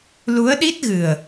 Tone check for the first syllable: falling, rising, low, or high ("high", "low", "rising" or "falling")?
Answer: rising